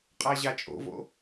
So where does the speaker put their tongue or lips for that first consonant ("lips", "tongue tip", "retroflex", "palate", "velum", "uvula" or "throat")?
uvula